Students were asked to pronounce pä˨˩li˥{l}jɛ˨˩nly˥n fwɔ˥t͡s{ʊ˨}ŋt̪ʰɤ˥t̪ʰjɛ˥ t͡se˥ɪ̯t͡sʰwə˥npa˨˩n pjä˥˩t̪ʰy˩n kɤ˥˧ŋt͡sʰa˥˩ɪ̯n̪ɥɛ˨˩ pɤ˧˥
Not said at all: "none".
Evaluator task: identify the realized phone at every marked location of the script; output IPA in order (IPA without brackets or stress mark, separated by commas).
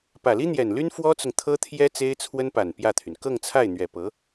n̪, ʊ˨